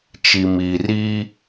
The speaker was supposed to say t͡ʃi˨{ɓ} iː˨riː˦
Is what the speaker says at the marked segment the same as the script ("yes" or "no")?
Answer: no